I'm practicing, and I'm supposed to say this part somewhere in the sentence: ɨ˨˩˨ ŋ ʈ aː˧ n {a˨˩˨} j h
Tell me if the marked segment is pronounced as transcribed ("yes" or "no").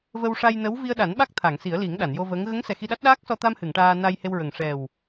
no